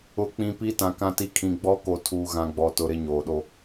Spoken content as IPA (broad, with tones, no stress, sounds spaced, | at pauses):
ʊ˨ k͡p ĩ˨ p i˦ t ã˨ k ã˦ t i˦ kʰ ĩ˨ ɡ͡b ɔ˦ k o˨ tʰ uː˨ ɣ ã˨ ɡ͡b ɔ˨ t ʊ˨ ɾ ɪ˦ ɲ oː˨ ɗ o˦